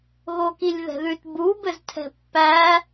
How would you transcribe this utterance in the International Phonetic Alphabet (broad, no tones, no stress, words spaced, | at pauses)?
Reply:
ɣokilʲðɛ̤ðʉt bu bɘztʰɛ̤pːæ